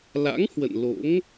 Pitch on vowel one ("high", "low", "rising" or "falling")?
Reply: rising